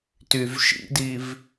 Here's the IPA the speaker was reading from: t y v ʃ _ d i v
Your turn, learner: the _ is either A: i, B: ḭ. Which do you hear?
B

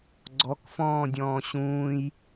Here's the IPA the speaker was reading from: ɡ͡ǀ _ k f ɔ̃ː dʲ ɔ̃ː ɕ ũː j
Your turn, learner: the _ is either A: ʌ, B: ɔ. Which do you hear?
B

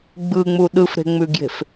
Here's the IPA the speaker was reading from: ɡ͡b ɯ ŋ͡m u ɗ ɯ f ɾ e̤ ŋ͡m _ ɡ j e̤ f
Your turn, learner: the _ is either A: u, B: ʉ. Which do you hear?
B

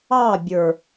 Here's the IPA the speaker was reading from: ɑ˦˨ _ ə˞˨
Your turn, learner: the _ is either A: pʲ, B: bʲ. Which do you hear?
B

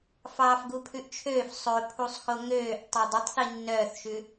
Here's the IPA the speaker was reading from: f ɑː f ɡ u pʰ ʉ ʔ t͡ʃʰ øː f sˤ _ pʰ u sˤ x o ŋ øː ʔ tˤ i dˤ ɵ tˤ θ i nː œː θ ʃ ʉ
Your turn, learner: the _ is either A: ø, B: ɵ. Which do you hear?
B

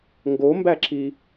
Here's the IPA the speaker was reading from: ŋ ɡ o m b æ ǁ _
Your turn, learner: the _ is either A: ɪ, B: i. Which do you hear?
B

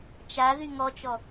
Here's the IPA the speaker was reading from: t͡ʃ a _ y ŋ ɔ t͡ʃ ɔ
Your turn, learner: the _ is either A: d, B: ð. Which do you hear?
B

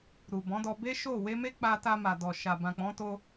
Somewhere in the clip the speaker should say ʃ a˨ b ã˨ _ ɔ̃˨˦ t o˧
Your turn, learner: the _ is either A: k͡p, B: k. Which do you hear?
A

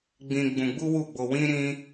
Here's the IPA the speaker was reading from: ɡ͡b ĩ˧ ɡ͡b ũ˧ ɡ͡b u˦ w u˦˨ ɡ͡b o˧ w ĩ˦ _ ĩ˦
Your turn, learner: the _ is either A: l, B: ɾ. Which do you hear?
B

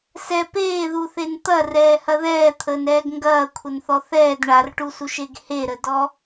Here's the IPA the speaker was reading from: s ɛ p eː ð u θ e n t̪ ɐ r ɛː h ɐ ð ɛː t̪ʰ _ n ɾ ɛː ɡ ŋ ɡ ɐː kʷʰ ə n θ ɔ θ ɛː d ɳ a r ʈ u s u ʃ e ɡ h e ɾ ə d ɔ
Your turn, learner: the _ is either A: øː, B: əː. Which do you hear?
B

